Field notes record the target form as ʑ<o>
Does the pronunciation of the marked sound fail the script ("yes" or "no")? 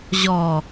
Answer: yes